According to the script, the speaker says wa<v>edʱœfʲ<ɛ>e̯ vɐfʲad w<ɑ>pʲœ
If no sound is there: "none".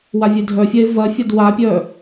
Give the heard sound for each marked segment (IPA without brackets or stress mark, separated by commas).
vʲ, ɛ, a